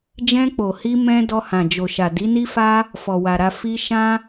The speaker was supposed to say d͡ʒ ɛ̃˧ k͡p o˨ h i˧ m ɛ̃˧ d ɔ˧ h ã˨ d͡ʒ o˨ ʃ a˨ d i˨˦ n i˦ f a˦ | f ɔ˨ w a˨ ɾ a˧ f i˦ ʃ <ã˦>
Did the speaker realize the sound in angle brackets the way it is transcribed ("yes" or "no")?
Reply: yes